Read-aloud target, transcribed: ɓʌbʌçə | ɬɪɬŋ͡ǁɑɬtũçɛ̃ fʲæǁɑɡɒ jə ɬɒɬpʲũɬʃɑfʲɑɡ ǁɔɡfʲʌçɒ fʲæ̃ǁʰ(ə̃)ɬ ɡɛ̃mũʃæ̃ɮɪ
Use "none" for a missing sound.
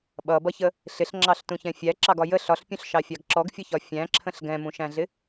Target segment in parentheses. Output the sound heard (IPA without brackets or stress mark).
ə̃